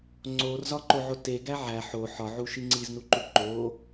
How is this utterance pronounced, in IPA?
ŋ͡ǀor zɒǃoʕote ɡæʕæ ħo ħɒʕuʃi ŋ͡ǀiznuǃuǃo

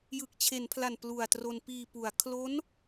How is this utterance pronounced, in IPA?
jɯ˨˩k̚t͡ɕʰe˩˦npʰla˨˩n plu˨˩a̯ tro˧n piː˨˩pu˩˦a̯ kʰlo˦˥n

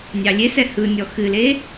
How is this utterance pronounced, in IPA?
nʲɑlʲesɛ hɯnʲɔ xɨle

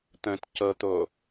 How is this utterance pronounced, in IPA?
t̪ə̃t cɤt̪o

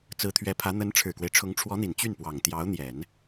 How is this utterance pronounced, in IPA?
t͡sɹ̩˧˥t̪ʰɥɛ˧˥pʰä˧˥ n̪ə˧˥n ʈ͡ʂʰɻ̩˨˩kwe˦ɪ̯ʈ͡ʂʰʊ˧˥ŋ ʈ͡ʂʰwɔ˧˥n̪i˨˩n t͡ɕy˥˩npwɑ˨˩ŋ t̪jɑ˧˥ʊ̯n̪jɛ˨˩˦n

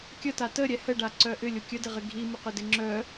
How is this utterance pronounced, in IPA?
kʲəta təɾʲɛ həɖaǀœ ʔʏlʲʊ kʲœdɪʁɪ ɡʱimʊqødɪ ŋ͡ǁœ

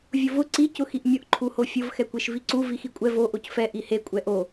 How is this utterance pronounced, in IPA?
vʲʊvʊ ǀi cʊxiʔmʲʊʔ ǃʰuhofʲʊv xɛkʷeʃviǀu vixikʷʼɛ vo ʔocfɛ ʔihe kʷʼɛʔo

